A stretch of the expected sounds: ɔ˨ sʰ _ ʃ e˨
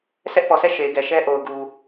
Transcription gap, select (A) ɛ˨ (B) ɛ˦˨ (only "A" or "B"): B